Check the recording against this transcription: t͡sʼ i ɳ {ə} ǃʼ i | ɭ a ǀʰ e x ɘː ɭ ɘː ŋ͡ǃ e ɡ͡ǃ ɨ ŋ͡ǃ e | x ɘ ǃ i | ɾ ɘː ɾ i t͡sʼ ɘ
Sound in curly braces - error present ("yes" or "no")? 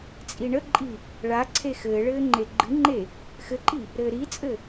no